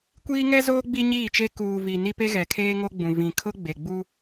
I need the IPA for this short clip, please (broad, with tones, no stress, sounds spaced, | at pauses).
kʷ iː˦ ŋ ɛ˦ z oː˦ ɡ͡b i˦ ɲ iː˦˨ t͡ʃ e˦ k uː˨ v i˨ n i˦ p e˦ ɣ ɛ˨ kʰ eː˦ ŋ o˦ ɡ͡b ũ˨ v ĩ˨ kʰ ʊ˦ ɡ͡b e˨ ɡ͡b u˦